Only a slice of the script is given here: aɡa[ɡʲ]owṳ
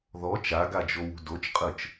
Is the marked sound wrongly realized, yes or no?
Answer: yes